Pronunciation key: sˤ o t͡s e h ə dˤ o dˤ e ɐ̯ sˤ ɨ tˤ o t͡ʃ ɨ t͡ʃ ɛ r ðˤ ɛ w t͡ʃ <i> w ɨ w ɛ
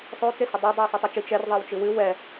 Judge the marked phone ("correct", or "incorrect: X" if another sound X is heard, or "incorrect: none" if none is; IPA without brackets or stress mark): incorrect: ɨ